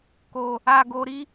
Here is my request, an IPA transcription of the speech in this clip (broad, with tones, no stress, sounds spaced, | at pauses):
k o˨ | a˨ ɡ o˨ ɾ i˨˦